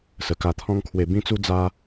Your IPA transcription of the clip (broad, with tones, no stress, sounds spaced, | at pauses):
s ə˨˩ k a˧ t̪ʰ ɔ̃˦ ŋ kʰ w e˧ b ĩ˦ t͡s u˦ d͡z a˦